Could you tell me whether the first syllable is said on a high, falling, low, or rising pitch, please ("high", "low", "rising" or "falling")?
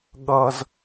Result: high